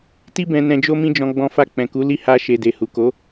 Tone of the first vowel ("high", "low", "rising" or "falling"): high